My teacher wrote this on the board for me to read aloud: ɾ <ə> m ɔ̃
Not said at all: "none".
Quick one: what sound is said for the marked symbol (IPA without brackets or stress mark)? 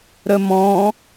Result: ə